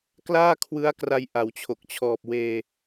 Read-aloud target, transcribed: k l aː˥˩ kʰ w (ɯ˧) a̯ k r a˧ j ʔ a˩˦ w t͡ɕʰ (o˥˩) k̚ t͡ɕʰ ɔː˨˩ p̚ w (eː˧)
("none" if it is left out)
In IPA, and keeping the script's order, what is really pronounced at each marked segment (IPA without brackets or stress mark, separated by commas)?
ɯ˦˥, o˨˩, eː˧